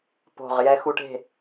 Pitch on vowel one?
low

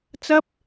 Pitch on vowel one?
high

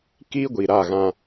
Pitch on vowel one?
high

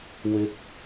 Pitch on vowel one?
low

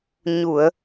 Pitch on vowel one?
low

